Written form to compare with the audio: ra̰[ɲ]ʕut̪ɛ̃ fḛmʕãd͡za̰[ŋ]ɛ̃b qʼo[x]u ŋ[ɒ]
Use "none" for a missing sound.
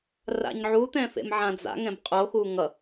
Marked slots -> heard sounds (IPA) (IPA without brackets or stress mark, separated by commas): ɲ, ŋ, x, ʌ